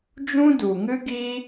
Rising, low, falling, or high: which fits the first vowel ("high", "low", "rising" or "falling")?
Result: high